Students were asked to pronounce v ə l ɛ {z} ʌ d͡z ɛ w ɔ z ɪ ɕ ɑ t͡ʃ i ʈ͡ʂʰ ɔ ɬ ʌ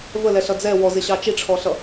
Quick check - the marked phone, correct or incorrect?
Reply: incorrect: ɬ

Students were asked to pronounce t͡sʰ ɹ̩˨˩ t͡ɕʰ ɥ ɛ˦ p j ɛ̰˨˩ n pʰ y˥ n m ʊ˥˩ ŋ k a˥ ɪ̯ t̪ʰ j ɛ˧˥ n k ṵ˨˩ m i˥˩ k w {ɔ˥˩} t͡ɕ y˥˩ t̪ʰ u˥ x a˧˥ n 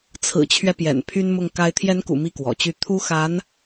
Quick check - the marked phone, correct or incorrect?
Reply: incorrect: ɔ̰˨˩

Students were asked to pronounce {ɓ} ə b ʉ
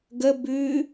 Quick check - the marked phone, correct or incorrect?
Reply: incorrect: ɡ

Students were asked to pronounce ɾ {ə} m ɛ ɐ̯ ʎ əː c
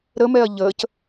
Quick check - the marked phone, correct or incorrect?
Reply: correct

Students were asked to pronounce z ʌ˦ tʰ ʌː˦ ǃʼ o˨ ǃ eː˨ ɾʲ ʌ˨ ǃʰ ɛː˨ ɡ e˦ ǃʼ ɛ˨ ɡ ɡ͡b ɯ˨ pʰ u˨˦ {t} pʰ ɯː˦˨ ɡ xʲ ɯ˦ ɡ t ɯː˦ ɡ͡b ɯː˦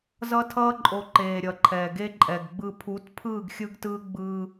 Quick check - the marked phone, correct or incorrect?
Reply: correct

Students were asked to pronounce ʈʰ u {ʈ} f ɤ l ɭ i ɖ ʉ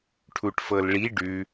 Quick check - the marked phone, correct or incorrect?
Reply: correct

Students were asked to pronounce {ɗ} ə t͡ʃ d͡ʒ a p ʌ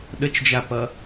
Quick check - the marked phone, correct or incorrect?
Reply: correct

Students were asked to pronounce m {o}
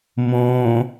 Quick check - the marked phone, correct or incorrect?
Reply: incorrect: õ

